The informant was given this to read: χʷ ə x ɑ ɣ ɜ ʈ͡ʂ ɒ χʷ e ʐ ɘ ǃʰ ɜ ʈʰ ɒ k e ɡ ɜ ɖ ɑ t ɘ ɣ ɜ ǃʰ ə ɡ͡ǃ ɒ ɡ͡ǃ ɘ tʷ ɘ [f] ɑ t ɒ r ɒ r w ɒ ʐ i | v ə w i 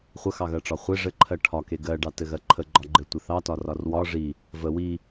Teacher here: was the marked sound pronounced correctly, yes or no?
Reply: no